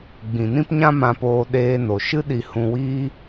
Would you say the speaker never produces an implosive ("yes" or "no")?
no